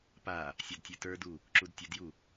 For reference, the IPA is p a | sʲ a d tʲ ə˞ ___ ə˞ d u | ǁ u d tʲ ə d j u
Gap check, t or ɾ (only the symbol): t